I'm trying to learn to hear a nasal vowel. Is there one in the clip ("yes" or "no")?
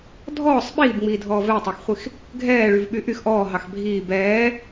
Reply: no